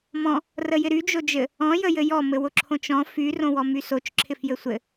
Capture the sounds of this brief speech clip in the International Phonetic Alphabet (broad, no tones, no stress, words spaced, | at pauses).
mɔ̃ | rəjɪɾy d͡ʒod͡ʒɘ | ɔ̃ jəjɘjɔ mɘwʊǁʰõt͡ʃɔ̃ fy rõwɔmysot͡ʃ ǁʰɪfjɘsʷɘ